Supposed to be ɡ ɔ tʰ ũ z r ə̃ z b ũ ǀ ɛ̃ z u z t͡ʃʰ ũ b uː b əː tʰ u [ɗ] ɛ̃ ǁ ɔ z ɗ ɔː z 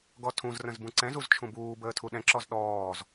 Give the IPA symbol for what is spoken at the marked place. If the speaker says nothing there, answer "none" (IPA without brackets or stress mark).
ɗ